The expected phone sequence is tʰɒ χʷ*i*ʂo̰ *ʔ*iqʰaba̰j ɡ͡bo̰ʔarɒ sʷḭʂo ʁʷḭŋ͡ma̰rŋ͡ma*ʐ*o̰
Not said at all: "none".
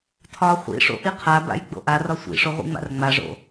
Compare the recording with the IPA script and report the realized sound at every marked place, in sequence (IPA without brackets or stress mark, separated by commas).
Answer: ḭ, ʔ, ʐ